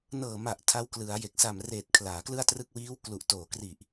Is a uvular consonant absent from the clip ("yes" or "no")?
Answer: yes